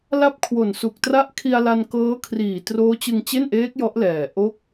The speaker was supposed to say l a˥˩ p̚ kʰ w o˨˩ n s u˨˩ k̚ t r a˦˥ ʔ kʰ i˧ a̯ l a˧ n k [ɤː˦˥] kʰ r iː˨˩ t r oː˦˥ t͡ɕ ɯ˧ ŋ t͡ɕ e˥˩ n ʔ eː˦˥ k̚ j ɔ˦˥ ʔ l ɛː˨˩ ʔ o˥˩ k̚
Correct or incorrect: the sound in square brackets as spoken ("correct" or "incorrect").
correct